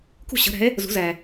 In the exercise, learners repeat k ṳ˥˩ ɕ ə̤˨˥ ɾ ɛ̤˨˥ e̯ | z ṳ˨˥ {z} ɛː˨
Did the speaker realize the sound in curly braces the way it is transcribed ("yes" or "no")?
yes